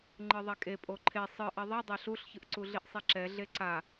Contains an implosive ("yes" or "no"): no